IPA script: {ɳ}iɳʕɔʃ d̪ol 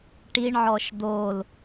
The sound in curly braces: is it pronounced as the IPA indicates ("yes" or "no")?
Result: no